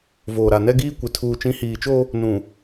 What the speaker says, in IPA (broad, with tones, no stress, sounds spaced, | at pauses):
v oː˨ ɾ a˨ n ɛ˦ ɡ iː˦ kʷ ɪ˨ tʰ uː˨ t͡ʃ ĩ˨˦ h iː˨ t͡ʃ o˦ | n ũ˨